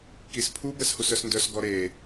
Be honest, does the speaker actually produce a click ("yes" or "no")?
no